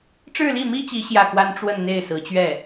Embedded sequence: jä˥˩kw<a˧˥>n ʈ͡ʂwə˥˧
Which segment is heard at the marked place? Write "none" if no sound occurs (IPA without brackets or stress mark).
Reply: a˥